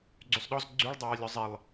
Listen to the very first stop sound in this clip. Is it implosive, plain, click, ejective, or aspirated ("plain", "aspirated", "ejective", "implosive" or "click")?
click